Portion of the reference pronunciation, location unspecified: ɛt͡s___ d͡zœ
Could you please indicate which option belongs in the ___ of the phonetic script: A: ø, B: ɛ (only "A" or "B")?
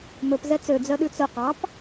A